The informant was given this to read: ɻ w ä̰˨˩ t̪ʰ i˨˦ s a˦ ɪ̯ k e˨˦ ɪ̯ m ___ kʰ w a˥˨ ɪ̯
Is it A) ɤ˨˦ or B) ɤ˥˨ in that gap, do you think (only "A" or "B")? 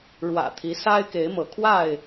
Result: A